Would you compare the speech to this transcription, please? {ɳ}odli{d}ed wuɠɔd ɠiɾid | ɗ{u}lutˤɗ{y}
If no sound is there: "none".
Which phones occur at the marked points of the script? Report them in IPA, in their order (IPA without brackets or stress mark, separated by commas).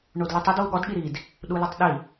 ɳ, tˤ, u, i